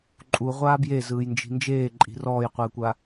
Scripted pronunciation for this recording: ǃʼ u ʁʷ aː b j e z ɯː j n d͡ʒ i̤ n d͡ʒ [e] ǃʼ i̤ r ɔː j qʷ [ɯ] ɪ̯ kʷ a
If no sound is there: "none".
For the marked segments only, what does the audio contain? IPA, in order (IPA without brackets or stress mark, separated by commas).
eː, ɯ